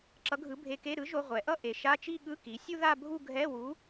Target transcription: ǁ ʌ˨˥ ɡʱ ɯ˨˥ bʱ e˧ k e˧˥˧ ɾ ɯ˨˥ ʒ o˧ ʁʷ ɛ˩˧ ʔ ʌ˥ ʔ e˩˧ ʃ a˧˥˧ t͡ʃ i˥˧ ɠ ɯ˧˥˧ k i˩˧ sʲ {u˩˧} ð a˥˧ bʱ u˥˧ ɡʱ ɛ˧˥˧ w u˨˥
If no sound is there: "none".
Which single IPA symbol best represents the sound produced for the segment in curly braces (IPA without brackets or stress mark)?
u˥